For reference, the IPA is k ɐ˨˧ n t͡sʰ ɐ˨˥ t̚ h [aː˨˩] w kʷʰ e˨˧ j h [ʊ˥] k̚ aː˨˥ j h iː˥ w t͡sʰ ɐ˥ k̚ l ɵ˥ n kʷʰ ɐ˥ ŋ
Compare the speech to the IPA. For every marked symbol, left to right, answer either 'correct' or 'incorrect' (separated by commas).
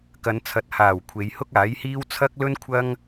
correct, correct